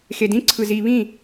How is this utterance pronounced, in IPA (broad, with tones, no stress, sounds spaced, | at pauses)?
x e˨ d ĩ˦ ǀʰ ɯ˨ z i˨ β ĩ˦˨